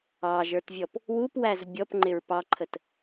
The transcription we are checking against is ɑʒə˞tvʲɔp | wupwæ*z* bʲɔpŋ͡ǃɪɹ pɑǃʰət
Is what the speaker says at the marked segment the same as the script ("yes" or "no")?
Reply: yes